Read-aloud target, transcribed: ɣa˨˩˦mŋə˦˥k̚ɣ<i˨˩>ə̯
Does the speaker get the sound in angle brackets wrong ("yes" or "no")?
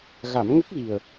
no